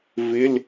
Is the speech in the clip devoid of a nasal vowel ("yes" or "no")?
yes